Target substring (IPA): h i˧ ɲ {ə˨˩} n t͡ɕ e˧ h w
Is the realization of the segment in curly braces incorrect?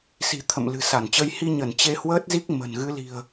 yes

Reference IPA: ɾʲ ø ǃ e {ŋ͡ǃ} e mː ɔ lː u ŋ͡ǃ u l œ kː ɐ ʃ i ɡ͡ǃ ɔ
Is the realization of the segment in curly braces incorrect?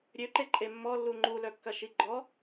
yes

